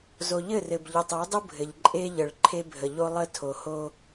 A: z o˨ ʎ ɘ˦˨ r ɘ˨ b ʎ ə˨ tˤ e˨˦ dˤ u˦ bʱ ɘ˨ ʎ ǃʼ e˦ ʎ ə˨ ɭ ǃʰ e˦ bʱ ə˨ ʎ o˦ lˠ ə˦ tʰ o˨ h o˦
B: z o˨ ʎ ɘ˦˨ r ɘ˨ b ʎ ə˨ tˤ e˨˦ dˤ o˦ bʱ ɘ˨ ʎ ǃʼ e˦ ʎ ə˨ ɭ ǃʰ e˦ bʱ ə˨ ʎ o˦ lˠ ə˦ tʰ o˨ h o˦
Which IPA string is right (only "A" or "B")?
A